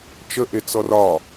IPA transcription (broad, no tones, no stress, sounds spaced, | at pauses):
t͡ʃ ə ʔ e t͡s ɔ r ɒ